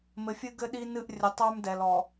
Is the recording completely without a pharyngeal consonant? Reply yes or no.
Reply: yes